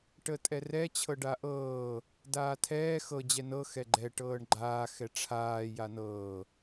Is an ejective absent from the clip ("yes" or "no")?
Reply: no